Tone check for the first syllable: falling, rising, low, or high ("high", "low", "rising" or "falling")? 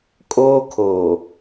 high